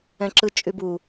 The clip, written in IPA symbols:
ɛ̃ ǁ ɯ t͡ʃʼ y b u

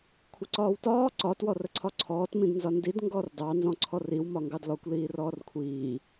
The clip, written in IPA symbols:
kʷʰ ɪ ǀ ɒː w t ɒː ǀ ɒ t w ɔ r ə ǀʰ ɒ ǀʰ ɔː t m ĩ d n z ɒ n d i d ŋ ɡ ɔː r d ɑ n z ɔ̃ ǀʰ ɔ r i w m ɒ ŋ ɡ ɑ d l ɔ kʷ l iː r ɔː r kʷʰ iː

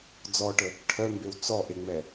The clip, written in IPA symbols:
d͡z ɔ ʈ ə | ʈʰ œ m b e w t͡s ɔ ʔ e ŋ͡m ɛ

